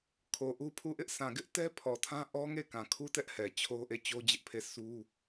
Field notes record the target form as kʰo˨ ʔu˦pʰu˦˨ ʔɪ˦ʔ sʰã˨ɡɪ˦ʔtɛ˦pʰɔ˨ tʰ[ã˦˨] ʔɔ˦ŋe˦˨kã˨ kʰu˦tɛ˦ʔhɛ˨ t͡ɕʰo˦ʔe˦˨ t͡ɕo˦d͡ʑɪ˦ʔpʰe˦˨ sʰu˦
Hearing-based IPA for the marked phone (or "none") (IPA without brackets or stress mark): ã˦